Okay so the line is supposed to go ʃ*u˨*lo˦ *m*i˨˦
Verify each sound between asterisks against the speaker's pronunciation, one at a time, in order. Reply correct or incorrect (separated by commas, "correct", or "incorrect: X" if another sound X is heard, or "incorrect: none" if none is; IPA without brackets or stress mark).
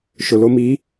incorrect: ʊ˨, correct